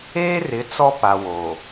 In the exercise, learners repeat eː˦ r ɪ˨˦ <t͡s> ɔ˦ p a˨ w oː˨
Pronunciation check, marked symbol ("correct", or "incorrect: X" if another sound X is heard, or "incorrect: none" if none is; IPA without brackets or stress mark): correct